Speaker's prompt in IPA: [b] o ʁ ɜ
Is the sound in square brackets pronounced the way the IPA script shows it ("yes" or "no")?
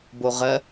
yes